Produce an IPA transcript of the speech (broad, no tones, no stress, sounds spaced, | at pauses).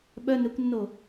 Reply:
ɓ œ n ø kʷ nː o